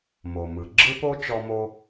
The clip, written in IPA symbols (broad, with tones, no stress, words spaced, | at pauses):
mo˩mɯ˩ ɡ͡ǁɯ˦po˦ t͡ʃɔ˦mo˦